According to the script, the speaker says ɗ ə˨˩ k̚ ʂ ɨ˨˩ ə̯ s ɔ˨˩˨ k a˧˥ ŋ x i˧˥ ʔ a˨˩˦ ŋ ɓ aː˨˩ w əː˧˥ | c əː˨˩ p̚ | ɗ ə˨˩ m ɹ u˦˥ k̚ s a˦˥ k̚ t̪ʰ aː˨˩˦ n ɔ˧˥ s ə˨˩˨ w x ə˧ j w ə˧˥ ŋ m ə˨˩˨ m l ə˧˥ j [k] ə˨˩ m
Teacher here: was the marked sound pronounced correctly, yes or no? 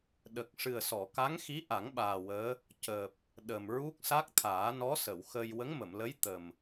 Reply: no